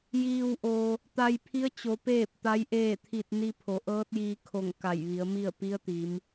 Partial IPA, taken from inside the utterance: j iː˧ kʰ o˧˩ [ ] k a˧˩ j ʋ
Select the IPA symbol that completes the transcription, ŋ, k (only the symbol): ŋ